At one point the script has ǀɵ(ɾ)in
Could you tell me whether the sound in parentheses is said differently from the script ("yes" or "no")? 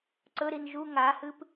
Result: no